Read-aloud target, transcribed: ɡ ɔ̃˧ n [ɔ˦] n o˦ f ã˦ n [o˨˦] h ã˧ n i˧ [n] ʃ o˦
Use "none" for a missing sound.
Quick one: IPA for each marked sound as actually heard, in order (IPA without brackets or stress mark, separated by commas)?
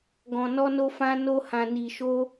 ɔ˦, o˦, none